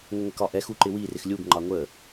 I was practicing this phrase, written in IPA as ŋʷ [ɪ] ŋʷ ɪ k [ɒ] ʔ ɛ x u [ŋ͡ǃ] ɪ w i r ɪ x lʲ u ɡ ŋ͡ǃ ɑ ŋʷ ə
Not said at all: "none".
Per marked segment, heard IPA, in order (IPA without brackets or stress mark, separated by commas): ɪ, ɒ, ǃ